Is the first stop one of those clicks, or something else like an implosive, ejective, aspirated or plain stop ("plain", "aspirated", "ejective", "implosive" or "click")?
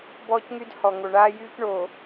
plain